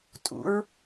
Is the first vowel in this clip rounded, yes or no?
yes